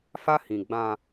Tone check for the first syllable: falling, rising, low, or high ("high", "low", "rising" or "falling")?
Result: high